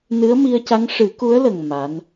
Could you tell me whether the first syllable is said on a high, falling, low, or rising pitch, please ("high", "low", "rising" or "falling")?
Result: rising